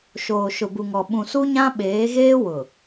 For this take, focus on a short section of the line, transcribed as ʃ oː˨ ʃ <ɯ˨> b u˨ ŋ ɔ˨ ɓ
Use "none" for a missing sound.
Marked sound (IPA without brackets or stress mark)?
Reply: ʊ˨